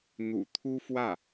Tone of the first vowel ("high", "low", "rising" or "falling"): low